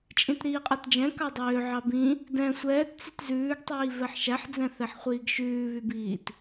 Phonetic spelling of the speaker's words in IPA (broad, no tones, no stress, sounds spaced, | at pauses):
t͡ʃʼ ĩ t ɾ iː qʼ æ t d͡ʒ ɛ̃ k ɑ dˤ øː ʕ ɑ b ĩ | d ɛ̃ sʷ ɛː t t͡s y t z ʉː ɡ tˤ iː v ɛ ħ ʃ æ ħ d͡z ɛ̃ θ ɛ ħ χʷ iː ɡ ʃ ʉː β y b iː t